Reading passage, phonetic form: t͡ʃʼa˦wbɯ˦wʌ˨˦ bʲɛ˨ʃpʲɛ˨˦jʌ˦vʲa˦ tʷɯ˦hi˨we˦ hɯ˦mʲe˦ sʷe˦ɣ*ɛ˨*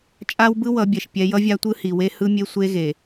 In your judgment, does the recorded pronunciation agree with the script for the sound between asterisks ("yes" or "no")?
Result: no